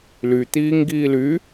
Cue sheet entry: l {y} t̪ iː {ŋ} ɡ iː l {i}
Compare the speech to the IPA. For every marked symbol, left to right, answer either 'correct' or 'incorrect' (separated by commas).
correct, correct, incorrect